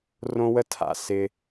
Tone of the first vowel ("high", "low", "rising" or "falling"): high